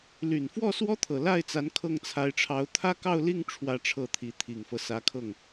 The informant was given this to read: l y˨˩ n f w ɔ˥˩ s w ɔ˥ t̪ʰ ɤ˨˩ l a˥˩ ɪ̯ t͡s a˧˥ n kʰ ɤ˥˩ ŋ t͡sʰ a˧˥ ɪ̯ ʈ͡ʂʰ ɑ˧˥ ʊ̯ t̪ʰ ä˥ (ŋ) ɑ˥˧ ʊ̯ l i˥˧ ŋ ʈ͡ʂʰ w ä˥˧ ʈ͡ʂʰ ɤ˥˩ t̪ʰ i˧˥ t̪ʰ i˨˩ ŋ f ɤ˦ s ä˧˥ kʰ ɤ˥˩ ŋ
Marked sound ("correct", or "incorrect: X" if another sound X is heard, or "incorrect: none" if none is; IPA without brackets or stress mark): incorrect: k